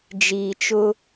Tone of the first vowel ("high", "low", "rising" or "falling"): low